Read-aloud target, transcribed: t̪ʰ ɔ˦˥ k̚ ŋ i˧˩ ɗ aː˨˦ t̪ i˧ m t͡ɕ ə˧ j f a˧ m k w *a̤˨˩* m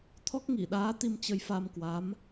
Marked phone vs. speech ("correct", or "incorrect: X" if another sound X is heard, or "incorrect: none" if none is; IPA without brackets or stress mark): incorrect: a˨˦